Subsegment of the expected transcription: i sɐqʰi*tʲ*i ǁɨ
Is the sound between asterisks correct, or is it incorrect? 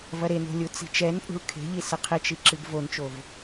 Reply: incorrect